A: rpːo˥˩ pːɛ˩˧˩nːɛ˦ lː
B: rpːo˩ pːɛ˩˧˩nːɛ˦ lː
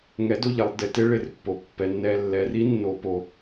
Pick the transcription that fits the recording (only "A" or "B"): B